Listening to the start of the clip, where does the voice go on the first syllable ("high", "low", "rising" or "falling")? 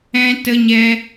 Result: high